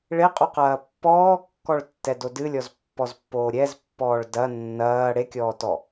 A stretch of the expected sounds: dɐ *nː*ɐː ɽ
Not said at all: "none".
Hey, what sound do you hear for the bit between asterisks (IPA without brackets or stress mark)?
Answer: nː